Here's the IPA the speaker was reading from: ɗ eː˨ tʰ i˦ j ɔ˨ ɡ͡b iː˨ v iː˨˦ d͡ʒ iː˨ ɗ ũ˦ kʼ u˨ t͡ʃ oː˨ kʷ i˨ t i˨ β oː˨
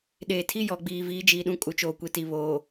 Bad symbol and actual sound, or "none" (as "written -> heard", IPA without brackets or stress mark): none